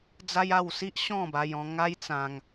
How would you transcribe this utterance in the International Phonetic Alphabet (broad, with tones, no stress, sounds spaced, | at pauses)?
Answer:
d͡z a˦ j a˥˧ w s i˦ ʔ ɕ ɔ̃˥˧ b a˧ j ɔ̃˧ ŋ a˦ j t͡s ã˧ ŋ